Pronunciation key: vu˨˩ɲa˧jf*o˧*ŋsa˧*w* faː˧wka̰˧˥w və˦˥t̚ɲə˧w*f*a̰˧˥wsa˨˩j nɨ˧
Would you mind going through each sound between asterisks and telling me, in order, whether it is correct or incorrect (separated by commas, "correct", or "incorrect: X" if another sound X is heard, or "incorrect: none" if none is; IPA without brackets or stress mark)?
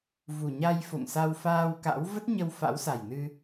incorrect: o̰˧˨, correct, correct